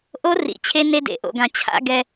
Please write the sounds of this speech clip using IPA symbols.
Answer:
ʔ o˦ r ḭ˨ t͡ɕʰ e˦ n e˦ d ḛ˨˦ ʔ o̰˨ ɡ ã˨ t͡ɕʰ a̰˦ ɡ ɛ˦

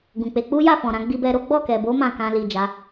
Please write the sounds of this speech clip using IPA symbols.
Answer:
ɡ ũ˨ k͡p e˧ k͡p u˦ j a˦˨ f ɔ̃˨ ɾ ã˨˦ ɡ͡b i˧ b ɛ˧ ɾ o˦ ɡ͡b ɔ˦˨ k ɛ˨ b o˨˦ m ã˦˨ k ã˧ l i˨ d͡ʒ a˨˦

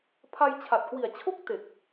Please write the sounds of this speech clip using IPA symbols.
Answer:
pʰ a˧ j t͡ɕʰ a˨˩ t̚ k w i˨˩ a̯ t͡ɕʰ o˥˩ k̚ t e˨˩ k̚

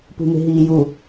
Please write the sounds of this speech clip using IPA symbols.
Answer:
p ṳ m e̤ ɦ iː j u

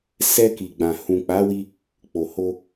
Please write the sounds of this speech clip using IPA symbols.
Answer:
s ɛ˧ k i˨ ɡ͡b ã˨ h ũ˨ k͡p a˨˦ w i˧ | k͡p o˨ h o˧

